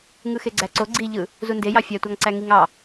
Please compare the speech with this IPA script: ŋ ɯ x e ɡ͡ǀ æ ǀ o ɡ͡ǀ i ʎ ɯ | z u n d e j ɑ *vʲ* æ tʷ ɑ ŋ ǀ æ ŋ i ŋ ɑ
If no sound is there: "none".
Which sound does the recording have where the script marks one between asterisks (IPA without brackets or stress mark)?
fʲ